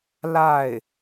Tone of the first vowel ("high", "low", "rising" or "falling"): falling